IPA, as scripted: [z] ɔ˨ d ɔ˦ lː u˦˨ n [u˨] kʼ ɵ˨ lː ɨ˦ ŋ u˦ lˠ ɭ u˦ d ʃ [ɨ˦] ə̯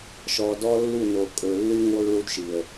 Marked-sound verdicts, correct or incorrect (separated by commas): incorrect, incorrect, incorrect